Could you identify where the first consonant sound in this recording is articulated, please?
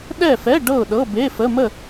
alveolar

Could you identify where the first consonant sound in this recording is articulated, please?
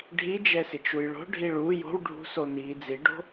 retroflex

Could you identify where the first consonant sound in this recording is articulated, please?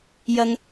palatal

